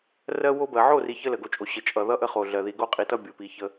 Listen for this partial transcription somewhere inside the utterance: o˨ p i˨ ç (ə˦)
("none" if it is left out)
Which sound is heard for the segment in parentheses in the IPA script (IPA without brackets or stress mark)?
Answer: ə˦